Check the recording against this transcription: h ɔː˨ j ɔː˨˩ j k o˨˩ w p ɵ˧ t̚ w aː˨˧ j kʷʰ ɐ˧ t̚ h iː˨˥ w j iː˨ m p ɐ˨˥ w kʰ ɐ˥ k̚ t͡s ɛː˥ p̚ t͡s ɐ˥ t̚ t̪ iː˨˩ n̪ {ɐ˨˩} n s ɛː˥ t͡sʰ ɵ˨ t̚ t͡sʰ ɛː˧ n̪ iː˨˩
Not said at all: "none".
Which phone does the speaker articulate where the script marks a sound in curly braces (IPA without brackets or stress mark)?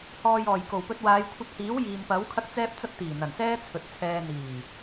ɐ˨˩